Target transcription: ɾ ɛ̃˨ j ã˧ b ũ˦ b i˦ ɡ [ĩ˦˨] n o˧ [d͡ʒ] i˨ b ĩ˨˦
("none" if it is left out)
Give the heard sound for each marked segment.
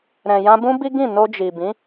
ĩ˦˨, d͡ʒ

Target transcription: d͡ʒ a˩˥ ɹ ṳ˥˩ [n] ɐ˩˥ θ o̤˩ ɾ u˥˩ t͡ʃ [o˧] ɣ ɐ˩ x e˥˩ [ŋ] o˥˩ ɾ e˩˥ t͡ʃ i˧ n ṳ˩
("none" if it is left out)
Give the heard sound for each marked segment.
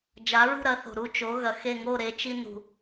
ɾ, o˩˥, ŋ

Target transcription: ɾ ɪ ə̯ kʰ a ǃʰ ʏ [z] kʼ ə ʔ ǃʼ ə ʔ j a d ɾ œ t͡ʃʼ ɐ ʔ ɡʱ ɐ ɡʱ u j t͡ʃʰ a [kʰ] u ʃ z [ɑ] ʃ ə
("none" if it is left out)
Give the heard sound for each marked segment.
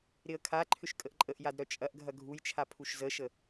ʃ, pʰ, ə

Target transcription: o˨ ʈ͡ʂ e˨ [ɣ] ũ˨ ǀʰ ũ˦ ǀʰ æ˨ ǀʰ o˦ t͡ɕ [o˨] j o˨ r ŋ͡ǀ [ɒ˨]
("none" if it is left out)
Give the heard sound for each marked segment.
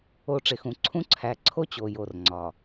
x, o˨, ɒ˨

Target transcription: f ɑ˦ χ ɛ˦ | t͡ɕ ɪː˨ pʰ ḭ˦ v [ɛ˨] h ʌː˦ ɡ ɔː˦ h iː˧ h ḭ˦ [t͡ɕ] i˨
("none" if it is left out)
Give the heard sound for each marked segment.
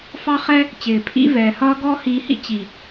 ɛː˨, t͡ɕ

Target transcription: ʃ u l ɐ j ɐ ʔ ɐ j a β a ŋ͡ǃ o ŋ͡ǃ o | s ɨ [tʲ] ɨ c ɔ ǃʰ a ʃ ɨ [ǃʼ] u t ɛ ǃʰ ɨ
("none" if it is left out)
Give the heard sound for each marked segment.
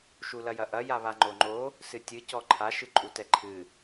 tʲ, ǃʼ

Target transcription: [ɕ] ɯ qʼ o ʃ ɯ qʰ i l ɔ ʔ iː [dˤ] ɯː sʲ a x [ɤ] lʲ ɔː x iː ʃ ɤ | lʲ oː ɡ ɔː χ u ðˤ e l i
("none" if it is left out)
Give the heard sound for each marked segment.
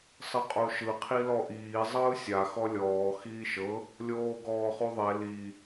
sˤ, zˤ, ɔ

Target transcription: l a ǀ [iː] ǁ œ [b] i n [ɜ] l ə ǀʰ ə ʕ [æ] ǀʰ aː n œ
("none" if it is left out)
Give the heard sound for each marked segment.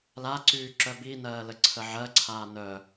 yː, b, ɜː, ɜ

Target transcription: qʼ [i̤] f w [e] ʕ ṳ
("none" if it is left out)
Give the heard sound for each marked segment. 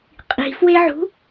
i̤, e

